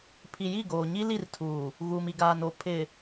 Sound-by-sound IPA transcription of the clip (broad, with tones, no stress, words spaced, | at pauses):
pʰi˨ji˦˨ɡoː˨ ɲi˦li˦˨rtʰuː˨ | ɣuː˨mi˨ɡaː˨n o˨ pʰɪ˨